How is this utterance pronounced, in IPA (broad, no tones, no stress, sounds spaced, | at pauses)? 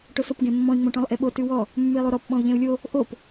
ʈ o s o p ɡ ẽ mː ɔ̃ i̯ ŋ͡m õ ʈ ɔ̃ lˠ ʔ e ɓ o t ʉ w ɔ | mː ʉ i̯ lˠ o ɾ ɔ p ɓ ɔ̃ u̯ ʎ ẽ u̯ lʲ o | ʔ o p